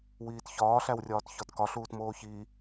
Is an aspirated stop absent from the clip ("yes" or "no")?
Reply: yes